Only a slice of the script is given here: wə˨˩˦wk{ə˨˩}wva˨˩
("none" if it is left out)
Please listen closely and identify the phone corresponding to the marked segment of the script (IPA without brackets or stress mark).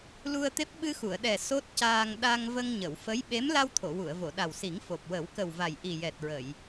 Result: ə˨˩